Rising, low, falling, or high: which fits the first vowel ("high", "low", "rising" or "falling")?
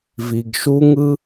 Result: low